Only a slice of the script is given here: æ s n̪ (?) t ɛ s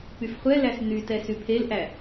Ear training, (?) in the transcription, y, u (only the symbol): y